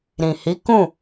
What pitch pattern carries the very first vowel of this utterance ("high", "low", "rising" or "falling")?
low